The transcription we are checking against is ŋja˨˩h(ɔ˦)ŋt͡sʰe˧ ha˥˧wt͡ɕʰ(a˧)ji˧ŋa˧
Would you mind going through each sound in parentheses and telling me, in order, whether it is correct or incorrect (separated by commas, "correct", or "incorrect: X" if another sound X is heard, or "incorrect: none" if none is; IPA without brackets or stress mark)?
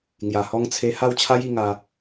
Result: incorrect: ɔ˧, incorrect: a˦